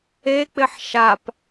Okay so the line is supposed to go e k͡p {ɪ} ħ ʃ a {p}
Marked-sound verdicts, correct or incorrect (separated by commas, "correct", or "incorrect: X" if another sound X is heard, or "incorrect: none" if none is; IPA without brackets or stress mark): correct, correct